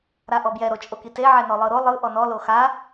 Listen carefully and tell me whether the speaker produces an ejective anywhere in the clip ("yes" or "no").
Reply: yes